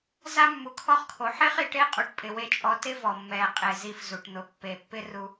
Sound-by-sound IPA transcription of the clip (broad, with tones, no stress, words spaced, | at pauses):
za˦mːu˨kʰɔ˦χkʰo˨ ħe˦χi˨ʈe˦ qʼu˨ʈpʼɪ˨we˧ t͡ʃʼɔ˧ tɪ˦vɔ˨mːɛ˨qʼe˨ zi˧f zu˨ʈ n̪ʊ˨˦ pːe˨pːɪ˦ ru˦